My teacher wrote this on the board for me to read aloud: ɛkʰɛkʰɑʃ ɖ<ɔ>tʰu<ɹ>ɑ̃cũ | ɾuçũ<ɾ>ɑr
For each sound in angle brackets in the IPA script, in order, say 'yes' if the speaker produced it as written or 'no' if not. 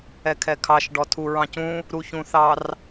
yes, yes, no

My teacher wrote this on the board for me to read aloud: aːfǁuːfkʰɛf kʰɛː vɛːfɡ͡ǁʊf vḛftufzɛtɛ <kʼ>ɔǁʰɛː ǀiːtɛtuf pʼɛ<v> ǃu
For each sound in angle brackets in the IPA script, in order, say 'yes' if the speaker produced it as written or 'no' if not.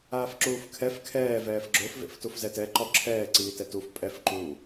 no, no

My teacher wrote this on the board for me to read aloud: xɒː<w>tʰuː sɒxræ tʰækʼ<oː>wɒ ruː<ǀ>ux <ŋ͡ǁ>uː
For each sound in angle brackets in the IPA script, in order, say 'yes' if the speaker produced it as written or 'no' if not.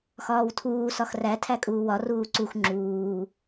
yes, no, yes, yes

